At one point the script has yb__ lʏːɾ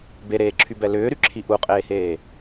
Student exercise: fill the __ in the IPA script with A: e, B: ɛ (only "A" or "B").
B